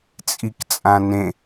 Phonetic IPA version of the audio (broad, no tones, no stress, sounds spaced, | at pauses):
t͡sʼ i k t͡sʼ ã n ẽ